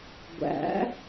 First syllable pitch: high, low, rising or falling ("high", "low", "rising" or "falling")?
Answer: rising